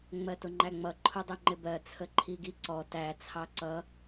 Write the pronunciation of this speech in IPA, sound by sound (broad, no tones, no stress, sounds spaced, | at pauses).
ŋ͡m ɜ t ʊ ŋ͡ǃ æ ŋ͡m ʌ ǃʰ ʊ dˤ ɛ ŋ͡ǃ ɪ b ɜ t͡sʰ ə ǃʰ i ɡ i ǀ ɔ t æ t͡sʰ ɑ ǀ ʌ